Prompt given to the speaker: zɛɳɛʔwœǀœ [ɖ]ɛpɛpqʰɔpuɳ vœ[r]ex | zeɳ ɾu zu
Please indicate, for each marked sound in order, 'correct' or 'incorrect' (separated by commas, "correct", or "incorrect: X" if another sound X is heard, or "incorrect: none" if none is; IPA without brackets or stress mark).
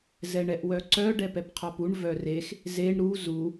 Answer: correct, correct